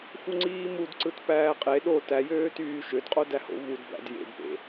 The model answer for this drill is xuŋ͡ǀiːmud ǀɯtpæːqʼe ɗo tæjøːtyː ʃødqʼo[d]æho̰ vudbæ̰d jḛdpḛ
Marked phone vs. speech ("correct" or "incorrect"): correct